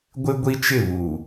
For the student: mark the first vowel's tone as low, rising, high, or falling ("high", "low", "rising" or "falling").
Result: high